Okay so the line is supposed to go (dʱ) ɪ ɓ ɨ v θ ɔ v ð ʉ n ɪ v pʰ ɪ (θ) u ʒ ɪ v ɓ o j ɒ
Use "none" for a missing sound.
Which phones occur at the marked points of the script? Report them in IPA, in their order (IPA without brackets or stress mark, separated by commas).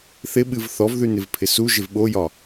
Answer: θ, s